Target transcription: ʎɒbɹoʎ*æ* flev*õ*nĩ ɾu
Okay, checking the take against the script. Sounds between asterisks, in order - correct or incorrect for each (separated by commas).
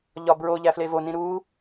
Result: correct, incorrect